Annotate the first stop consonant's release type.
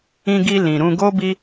plain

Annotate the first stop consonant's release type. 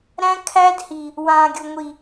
aspirated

